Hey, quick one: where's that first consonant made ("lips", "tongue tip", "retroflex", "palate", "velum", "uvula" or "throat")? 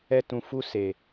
tongue tip